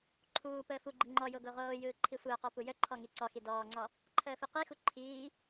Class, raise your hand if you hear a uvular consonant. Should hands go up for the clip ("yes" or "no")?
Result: yes